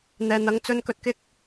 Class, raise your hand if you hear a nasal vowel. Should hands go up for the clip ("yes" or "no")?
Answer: no